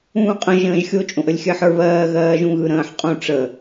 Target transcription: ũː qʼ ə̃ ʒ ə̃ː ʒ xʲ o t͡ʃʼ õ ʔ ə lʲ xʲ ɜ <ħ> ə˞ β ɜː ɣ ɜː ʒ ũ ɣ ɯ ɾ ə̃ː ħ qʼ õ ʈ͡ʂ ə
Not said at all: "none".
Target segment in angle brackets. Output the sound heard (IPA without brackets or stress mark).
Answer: ħ